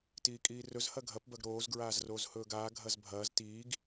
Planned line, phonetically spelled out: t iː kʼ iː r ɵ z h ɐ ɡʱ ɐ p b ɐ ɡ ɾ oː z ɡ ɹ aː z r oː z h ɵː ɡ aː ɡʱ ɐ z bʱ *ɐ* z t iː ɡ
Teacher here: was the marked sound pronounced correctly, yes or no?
no